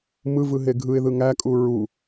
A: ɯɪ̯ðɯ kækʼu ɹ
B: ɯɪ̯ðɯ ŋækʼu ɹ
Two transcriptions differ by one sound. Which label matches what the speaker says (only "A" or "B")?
B